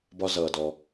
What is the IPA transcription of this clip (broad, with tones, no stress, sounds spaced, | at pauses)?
b ɒ˧ z ʌː˩ d ɔ˩